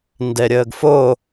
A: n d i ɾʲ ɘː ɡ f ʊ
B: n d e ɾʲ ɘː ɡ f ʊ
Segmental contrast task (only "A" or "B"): B